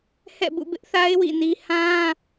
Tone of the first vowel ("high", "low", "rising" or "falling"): falling